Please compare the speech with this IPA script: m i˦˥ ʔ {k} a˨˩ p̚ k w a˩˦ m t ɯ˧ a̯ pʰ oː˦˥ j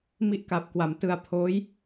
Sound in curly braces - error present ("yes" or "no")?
no